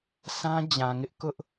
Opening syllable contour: high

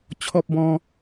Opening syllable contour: high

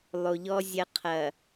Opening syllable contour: low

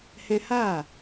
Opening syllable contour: high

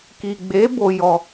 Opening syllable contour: low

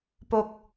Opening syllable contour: high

